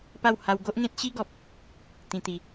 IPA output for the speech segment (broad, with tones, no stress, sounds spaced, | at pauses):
p a˥˧ w h a˦ w ɡ o˦ ʔ ŋ ẽ˦ t̚ ɕ i˦ ɡ ɔ˨ p̚ | t̪ ĩ˧ t̪ i˨˦